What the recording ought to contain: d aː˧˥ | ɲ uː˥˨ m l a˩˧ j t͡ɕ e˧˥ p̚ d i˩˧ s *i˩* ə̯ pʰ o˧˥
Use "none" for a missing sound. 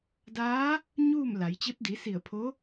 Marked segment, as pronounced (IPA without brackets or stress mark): i˧˩